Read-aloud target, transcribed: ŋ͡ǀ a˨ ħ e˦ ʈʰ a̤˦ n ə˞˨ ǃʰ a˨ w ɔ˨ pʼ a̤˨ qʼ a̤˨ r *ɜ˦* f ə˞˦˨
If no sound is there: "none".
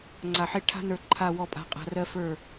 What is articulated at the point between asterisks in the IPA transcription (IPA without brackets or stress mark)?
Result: ɜ˦